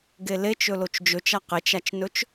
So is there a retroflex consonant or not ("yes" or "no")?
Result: no